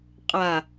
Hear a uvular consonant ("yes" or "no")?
yes